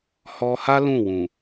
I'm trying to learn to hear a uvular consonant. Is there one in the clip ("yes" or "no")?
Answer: no